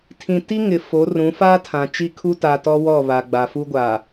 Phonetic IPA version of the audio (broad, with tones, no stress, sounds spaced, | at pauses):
tʰ ĩ˨ t i˦ ŋ ɪ˨ f o˨˦ r ũ˨˦ f aː˦ tʰ ã˨ t͡ʃ i˦ kʰ u˦ t a˨ t ɔ˦ w ɔ˦˨ β a˨ ɡ͡b a˨ f u˦ ɡʷ a˨